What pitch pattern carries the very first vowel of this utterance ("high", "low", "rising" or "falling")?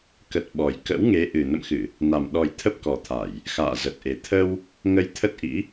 low